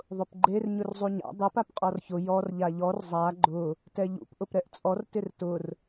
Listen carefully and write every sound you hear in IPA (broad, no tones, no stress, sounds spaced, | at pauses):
ðˤ ʊ p ɡ͡ǃ e r ɲ ʊ r zˤ u ɲ a̰ dˤ e p a p qʼ ɔ r ç ʊ j ɔ r ʎ a ʎ ɔ r zˤ a ɡ͡ǃ ʊ | t ɛ ʎ ṵ p ʔ ʊ p ɾ ɛ ʔ t͡sʼ ɔ r t ɪ r t ʊ r